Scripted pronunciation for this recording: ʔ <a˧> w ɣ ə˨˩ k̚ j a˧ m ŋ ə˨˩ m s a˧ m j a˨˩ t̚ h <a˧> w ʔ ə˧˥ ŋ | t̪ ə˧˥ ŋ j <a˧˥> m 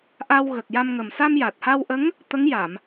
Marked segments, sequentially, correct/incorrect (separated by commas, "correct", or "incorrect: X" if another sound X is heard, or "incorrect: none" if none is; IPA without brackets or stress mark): correct, correct, incorrect: a˨˩˨